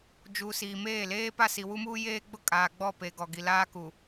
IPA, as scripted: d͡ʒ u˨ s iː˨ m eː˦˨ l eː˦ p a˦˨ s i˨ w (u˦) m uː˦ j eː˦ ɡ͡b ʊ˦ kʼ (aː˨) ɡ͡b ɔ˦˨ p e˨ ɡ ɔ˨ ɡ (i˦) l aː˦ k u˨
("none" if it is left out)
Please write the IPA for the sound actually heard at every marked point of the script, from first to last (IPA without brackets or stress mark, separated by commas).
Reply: u˦, aː˨, i˨